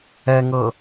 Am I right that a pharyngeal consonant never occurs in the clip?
yes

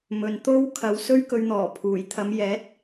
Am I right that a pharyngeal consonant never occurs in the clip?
yes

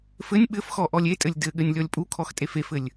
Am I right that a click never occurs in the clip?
yes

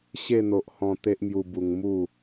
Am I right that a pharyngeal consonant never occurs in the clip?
yes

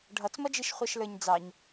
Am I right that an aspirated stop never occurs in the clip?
yes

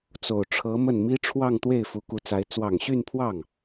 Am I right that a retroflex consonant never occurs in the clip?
no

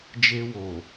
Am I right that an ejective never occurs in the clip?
yes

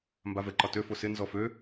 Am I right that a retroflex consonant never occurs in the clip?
yes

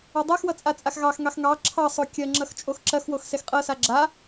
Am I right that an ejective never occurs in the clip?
no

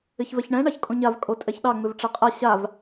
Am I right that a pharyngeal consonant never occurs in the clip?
yes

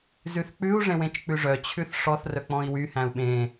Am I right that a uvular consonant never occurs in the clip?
yes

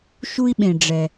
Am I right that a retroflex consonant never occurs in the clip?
no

